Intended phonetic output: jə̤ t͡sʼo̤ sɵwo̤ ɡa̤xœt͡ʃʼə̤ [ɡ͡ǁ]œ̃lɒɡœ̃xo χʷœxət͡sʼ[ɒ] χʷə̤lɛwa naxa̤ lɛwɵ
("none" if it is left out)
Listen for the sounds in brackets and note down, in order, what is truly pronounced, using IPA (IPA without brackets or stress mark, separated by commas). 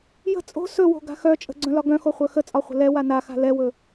ɡ͡ǀ, ɒ